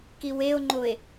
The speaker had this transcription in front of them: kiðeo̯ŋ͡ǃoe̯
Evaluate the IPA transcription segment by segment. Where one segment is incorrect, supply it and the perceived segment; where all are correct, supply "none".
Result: ð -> w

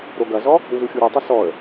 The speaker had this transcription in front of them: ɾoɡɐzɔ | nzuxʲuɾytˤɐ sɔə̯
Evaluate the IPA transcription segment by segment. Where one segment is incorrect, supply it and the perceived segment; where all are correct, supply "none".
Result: none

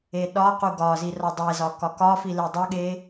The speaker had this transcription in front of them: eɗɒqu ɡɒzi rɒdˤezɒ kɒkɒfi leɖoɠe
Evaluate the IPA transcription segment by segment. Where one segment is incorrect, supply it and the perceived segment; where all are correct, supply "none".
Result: ɖ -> dˤ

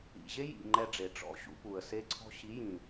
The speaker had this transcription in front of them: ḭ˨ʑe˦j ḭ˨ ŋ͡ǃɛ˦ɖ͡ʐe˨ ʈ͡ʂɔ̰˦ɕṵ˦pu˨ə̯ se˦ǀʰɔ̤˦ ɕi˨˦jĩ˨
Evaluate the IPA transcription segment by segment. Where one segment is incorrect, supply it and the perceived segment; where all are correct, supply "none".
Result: none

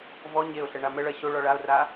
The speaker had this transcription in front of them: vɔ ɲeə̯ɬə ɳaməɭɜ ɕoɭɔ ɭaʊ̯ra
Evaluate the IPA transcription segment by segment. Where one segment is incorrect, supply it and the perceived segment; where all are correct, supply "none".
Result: ə̯ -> ʊ̯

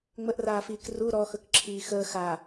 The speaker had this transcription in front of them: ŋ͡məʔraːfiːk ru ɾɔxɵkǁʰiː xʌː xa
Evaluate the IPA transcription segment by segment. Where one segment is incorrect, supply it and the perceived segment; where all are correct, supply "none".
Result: ʌː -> əː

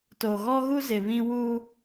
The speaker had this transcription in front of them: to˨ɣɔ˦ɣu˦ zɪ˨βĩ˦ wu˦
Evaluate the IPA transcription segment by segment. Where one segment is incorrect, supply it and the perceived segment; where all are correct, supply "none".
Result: none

